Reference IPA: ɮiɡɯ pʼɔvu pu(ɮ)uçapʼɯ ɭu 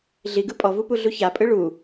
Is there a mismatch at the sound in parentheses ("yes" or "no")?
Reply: no